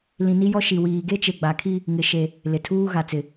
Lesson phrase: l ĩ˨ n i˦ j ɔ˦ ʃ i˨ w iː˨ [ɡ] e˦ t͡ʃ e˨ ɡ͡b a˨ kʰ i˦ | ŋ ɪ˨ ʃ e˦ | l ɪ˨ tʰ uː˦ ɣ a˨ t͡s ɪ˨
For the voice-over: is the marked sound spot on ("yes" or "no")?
yes